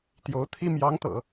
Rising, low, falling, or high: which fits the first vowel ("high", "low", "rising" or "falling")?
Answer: rising